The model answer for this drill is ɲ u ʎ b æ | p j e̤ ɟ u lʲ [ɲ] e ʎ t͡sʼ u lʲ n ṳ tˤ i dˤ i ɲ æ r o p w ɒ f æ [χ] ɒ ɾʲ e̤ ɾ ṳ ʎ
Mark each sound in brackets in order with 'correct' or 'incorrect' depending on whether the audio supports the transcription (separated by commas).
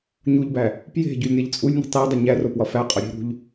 incorrect, incorrect